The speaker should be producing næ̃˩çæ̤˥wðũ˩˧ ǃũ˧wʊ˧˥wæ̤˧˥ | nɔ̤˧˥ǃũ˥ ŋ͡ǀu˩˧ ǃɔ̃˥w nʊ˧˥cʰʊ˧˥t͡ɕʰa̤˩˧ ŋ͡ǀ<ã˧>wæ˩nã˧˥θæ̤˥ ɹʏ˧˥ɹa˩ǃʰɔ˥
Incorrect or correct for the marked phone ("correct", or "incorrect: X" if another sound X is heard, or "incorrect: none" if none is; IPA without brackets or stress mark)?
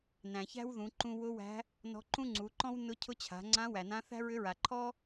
incorrect: ã˧˥